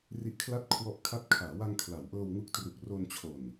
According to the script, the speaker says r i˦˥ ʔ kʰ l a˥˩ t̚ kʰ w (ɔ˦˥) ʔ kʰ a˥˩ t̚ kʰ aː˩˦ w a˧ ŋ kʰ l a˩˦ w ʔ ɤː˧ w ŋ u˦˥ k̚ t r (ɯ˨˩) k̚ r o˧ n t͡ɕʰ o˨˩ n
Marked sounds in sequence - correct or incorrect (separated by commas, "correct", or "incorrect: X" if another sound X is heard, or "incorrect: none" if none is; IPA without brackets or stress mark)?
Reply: correct, incorrect: u˨˩